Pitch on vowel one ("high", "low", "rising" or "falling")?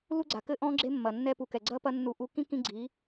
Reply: high